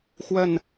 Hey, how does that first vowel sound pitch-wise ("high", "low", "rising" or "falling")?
falling